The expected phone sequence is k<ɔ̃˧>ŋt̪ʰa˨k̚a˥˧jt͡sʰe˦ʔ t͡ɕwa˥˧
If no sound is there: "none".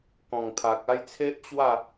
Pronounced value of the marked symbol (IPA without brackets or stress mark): ɔ̃˨˩